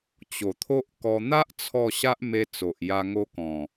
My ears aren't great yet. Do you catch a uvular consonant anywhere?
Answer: no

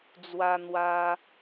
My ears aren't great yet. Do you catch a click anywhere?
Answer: no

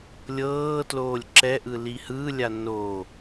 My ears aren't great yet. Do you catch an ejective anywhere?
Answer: no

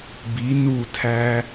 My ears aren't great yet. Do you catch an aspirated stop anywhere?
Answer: yes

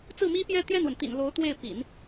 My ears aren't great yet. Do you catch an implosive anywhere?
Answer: no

